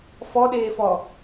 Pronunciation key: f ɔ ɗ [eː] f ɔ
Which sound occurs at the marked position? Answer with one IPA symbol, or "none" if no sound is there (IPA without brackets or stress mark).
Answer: eː